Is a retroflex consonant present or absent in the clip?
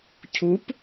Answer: absent